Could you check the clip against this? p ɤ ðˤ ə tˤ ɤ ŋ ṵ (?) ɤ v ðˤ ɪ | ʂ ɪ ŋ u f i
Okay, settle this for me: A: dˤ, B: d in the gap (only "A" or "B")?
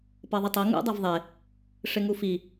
A